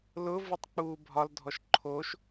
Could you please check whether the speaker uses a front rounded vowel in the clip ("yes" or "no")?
no